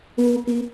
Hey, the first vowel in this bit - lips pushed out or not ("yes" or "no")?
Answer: yes